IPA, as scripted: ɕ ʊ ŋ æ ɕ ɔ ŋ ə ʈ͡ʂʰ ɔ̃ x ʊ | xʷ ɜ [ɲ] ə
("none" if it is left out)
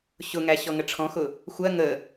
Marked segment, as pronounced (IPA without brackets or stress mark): ŋ